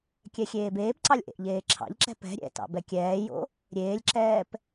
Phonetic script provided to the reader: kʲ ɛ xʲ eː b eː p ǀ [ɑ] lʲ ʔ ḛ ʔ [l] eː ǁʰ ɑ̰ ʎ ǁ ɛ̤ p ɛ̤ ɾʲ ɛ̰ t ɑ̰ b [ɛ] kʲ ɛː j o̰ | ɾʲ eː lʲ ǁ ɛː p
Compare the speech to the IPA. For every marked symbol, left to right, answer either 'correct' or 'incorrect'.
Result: correct, incorrect: ʎ, correct

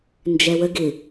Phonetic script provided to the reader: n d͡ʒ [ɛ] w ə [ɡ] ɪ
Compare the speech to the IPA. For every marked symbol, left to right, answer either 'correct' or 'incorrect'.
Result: correct, correct

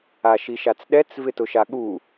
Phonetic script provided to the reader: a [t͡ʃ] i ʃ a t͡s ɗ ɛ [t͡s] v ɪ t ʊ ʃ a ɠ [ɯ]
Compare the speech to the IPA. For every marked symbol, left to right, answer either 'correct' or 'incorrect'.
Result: incorrect: ʃ, correct, incorrect: u

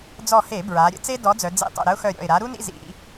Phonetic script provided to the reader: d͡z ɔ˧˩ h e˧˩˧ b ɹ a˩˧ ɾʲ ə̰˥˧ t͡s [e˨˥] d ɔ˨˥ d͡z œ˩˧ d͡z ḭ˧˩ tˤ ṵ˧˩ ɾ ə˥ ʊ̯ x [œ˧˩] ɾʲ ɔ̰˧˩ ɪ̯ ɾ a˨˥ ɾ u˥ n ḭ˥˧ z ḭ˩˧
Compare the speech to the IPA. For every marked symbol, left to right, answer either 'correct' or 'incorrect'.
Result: incorrect: e˥, correct

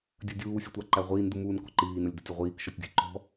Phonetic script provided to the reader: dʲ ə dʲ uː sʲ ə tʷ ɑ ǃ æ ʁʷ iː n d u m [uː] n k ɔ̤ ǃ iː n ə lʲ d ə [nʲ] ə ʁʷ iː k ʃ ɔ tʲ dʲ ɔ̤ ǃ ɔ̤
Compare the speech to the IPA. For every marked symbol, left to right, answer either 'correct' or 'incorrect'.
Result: correct, incorrect: tʲ

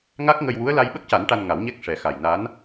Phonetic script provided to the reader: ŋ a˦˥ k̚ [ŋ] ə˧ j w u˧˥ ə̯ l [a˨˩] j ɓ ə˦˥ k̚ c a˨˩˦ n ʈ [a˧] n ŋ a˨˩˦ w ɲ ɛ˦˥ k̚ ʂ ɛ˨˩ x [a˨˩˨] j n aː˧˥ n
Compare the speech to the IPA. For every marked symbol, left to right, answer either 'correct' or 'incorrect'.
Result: correct, incorrect: a˧, correct, incorrect: a˨˩

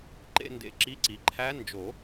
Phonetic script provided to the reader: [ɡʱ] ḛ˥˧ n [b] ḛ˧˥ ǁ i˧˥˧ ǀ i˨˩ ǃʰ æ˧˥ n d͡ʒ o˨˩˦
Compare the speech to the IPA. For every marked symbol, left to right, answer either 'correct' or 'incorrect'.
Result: incorrect: ǃ, incorrect: d

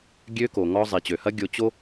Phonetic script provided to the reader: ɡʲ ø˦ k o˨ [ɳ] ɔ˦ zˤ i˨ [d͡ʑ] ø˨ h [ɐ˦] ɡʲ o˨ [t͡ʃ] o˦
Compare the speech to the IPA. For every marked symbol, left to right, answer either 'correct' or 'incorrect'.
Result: incorrect: ŋ, incorrect: t͡ɕ, correct, incorrect: t͡ɕ

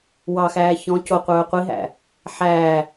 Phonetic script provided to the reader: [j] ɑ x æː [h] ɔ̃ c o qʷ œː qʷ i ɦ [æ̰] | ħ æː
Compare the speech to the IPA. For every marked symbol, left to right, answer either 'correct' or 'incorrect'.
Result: incorrect: w, incorrect: ç, correct

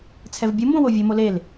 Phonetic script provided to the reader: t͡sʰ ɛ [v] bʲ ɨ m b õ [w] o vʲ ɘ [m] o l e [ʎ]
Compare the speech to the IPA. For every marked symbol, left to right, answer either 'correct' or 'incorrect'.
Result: correct, correct, correct, incorrect: l

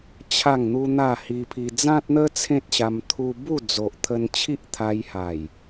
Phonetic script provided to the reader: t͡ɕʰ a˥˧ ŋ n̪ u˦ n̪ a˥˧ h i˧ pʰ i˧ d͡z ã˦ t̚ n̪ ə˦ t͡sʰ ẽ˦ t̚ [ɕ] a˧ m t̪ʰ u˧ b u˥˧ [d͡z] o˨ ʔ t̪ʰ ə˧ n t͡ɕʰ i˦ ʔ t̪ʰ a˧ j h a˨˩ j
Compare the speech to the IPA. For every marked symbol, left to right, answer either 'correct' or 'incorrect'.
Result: correct, correct

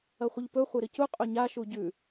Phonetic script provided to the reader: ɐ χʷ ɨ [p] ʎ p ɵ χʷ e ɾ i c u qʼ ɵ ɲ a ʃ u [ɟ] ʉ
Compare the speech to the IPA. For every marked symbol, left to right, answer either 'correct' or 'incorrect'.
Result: incorrect: none, correct

